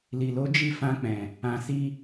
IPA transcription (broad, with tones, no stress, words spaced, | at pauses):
li˨lo˨˦ d͡ʒi˦˨ fã˧k͡pɛ̃˨ | ã˧si˦